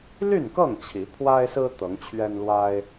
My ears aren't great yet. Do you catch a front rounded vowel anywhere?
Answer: yes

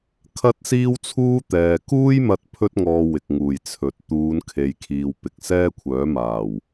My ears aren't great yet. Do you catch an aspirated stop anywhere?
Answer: yes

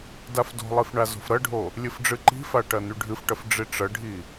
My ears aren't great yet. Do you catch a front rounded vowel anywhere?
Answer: yes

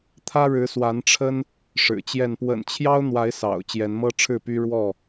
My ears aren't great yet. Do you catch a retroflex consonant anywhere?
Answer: yes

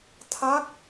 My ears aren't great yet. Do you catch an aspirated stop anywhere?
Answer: yes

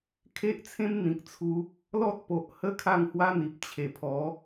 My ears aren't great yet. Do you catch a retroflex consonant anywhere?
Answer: no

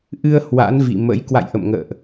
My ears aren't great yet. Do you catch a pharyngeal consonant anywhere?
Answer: no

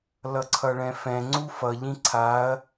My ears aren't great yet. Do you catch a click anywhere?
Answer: yes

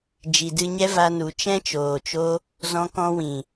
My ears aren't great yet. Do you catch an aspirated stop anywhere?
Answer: no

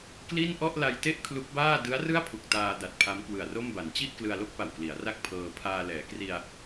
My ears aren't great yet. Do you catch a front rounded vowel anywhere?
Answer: no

